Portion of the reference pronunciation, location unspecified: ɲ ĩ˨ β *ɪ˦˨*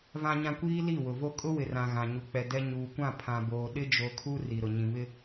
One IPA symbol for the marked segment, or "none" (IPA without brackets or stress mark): ɪ˦